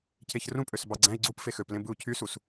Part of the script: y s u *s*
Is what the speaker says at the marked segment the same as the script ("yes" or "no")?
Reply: yes